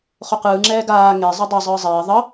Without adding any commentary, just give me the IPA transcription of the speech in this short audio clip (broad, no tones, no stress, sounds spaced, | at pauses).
χ o q ɯː ŋ͡ǁ ɛː ɡ aː ŋ e zˤ ɯ dˤ e zˤ ɯː zˤ ɛː ðˤ ʌ